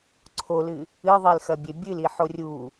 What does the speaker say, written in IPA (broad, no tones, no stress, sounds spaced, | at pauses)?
ǀʰ o l ɨ | ɨ ðˤ i l x ɐ bʲ e bʲ ɨ l i ħ o rʲ u